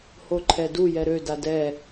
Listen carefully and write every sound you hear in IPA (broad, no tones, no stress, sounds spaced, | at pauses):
h o ǃʰ ɛ d u j ɛ ɾ ø d a d ɛ